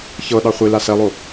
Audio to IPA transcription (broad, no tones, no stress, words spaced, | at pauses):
çɤɗɑ χʷila sɛlˠo